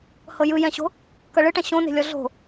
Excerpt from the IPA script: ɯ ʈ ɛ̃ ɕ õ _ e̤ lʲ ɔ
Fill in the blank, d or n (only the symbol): n